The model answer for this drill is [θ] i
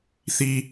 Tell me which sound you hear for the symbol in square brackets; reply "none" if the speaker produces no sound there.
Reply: θ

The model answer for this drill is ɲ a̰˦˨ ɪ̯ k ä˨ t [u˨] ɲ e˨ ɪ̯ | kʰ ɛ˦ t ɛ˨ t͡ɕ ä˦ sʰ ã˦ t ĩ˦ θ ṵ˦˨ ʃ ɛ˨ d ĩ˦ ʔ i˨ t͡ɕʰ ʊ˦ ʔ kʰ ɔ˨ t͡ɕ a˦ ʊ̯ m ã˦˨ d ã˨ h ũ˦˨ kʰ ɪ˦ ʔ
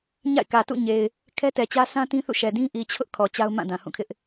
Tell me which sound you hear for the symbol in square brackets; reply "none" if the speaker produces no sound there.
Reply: ṵ˦˨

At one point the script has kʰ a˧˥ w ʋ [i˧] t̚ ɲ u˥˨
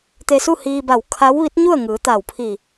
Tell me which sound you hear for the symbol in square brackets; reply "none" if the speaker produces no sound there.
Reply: i˧˥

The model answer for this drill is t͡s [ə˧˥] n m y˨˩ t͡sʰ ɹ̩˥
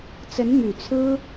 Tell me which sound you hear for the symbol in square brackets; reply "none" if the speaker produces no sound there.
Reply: ə˧˥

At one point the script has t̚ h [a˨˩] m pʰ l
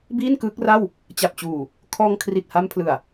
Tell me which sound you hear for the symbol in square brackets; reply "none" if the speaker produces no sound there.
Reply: a˧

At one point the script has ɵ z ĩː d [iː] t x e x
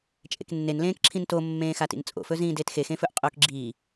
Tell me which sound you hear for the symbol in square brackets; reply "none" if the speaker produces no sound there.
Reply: eː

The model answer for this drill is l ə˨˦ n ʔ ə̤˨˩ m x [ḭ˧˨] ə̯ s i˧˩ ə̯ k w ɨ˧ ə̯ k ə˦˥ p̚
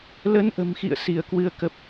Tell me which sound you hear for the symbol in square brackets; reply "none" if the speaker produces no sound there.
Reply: ḭ˧˨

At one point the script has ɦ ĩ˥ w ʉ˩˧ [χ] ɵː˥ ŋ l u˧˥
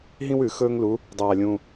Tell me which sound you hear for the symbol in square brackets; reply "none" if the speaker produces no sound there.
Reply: x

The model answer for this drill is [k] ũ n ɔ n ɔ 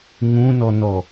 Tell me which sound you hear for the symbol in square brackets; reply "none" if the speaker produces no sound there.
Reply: ŋ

